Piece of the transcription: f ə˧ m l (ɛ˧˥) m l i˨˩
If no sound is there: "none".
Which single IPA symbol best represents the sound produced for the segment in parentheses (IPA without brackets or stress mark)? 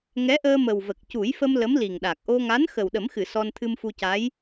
ə˧˥